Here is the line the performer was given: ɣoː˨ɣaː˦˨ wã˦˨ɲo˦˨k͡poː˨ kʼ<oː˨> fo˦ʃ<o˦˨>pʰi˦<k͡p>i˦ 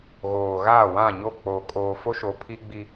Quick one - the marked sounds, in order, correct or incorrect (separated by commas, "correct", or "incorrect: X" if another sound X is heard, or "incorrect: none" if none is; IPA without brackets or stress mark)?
correct, incorrect: o˨˦, incorrect: ɡ͡b